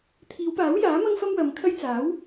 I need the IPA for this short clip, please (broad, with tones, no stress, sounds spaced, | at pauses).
t̪ʰ iː˨˧ w p aː˨˥ w j aː˨˥ m ɐ˥ ŋ f ɐ˥ m w ɐ˨˧ m kʰ ɐ˥ j t͡s aː˨˥ w